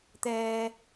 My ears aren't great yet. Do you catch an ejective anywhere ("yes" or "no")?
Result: no